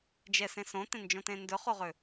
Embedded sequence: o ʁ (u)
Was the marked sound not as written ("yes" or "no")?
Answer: yes